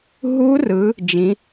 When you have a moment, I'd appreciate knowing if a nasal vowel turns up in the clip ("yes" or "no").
yes